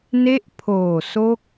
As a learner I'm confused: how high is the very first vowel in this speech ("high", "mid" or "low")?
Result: mid